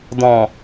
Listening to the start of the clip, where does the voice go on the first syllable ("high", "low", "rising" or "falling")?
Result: low